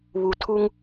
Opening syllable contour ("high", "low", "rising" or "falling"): low